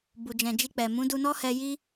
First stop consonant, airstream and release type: plain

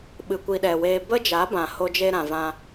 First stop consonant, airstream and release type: implosive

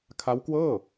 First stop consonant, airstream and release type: aspirated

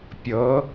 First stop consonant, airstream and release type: plain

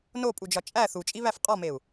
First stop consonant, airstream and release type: ejective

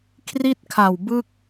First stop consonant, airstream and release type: aspirated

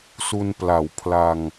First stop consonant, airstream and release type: plain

